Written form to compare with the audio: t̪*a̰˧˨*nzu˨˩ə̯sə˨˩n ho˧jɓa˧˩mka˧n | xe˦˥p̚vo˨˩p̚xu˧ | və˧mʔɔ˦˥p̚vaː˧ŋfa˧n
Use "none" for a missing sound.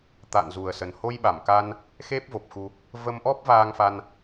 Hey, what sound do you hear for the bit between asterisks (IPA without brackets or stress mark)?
a̰˧˨